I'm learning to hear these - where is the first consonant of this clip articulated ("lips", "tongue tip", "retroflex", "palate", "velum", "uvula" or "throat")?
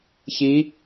palate